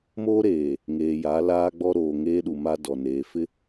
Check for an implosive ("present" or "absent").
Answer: present